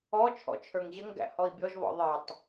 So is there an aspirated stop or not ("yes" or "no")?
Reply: yes